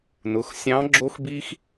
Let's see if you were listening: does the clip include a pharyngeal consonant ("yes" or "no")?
no